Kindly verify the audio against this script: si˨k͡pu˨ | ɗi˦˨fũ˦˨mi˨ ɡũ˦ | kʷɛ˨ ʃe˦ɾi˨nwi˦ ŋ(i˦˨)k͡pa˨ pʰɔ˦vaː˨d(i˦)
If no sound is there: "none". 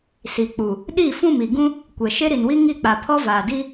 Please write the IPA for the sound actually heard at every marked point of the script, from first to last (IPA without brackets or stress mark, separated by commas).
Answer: i˦˨, i˦